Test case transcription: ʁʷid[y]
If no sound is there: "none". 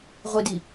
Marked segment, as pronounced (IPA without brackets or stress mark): i